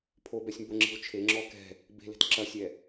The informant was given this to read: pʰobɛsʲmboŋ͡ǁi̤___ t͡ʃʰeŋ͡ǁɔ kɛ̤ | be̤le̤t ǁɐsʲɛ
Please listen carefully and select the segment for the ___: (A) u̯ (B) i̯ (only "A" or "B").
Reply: A